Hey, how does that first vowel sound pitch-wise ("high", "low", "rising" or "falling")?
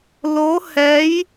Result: rising